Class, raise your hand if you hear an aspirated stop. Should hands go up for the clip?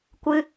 no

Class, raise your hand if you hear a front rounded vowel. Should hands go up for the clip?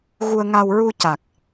no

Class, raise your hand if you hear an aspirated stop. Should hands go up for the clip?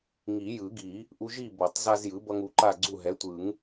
no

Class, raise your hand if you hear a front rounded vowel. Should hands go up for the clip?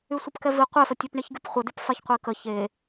yes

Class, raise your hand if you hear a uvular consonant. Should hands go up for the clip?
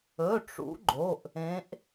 no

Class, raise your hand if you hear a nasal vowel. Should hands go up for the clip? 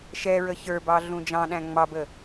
yes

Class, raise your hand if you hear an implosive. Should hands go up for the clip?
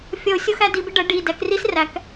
no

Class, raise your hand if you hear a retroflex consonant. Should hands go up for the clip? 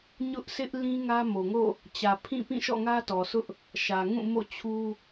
no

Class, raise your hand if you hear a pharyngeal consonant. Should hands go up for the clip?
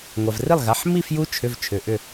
yes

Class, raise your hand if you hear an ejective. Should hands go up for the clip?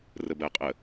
yes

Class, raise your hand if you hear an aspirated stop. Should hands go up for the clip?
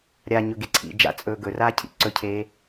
yes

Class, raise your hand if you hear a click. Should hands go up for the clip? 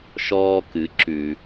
yes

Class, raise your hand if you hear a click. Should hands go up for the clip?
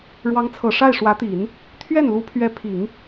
no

